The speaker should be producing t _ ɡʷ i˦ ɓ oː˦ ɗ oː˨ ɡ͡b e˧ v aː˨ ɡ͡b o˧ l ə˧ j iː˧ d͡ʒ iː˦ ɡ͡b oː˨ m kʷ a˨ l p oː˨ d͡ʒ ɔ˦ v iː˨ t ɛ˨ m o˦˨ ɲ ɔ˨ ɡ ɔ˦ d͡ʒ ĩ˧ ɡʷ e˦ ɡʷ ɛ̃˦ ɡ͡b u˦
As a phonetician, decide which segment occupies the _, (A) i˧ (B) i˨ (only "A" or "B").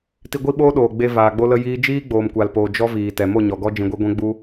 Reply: A